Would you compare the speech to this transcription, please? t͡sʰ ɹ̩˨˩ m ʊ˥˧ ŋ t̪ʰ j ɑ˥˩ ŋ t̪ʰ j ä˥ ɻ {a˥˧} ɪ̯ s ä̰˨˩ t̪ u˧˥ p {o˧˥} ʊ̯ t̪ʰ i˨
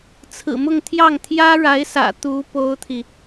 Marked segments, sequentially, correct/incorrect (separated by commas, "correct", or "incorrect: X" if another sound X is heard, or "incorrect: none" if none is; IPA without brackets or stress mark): incorrect: a˧˥, incorrect: o˥